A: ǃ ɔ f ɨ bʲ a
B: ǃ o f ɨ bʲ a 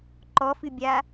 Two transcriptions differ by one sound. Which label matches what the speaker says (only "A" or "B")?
A